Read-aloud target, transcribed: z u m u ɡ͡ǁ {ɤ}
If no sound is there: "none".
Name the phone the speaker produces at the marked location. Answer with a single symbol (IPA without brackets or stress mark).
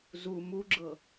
ɤ